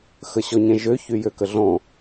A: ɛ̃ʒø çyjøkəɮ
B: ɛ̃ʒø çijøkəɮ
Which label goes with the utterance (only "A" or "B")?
A